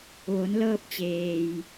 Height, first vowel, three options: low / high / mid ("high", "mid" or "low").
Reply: mid